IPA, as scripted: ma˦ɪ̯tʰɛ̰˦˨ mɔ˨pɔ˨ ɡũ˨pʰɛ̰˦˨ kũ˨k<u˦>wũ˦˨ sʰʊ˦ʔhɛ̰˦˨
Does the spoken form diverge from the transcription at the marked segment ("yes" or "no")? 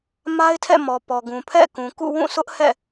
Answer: yes